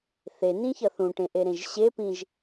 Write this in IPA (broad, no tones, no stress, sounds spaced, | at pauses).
θ e n ĩ ç ʌ θ ũ ʈ ẽ ʔ e ɾ ẽ ʒ ɕ e p ĩ ʒ